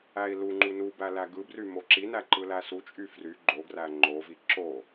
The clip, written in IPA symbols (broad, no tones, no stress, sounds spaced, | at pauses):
æ i̯ l u ŋ͡ǃ u n u b æ l æ ɡ ɯ b r y m o ǁ i n æ ǃ ɯ l æ s u t͡ʃʼ y f r y ɡ͡ǃ o ɡ r æ ŋ͡ǃ o v i ǁ o